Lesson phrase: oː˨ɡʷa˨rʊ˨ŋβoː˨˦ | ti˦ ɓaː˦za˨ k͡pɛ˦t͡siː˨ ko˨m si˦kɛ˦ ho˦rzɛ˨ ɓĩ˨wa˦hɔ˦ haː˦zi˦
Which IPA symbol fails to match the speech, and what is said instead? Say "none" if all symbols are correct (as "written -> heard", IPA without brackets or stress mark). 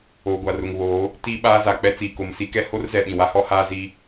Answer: none